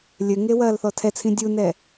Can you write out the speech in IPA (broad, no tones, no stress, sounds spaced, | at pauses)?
lʲ ɘ ŋ e w ɐː l θ ɔ tʰ ɛ t͡sʰ ĩ dʲ u n ɛ